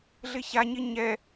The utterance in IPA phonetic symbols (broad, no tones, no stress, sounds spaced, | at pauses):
ɮ ɪ ç a ɲ ɪ ɲ ɛ